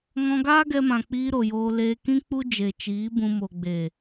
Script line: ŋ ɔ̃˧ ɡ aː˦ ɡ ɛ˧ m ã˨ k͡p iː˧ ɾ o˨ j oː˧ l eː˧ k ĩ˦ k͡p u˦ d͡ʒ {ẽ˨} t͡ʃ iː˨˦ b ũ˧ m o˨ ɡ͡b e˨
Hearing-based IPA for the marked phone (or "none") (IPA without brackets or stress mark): e˨